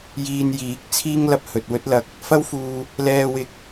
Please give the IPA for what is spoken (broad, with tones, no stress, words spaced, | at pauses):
jiː˧njiː˨˥k̚ t͡sʰiː˥ŋlɐ˧p̚ hɵ˧t̚ wɵ˥t̚lɐ˧k̚ | fɐ˥wfuː˧ | lɛː˧wɪ˧k̚